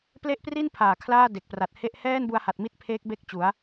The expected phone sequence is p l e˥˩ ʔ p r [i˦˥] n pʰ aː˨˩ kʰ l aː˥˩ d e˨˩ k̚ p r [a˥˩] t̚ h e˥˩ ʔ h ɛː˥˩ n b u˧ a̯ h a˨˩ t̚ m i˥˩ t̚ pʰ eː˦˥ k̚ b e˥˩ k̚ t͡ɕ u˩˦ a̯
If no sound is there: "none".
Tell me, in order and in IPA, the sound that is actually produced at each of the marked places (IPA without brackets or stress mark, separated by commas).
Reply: i˥˩, a˨˩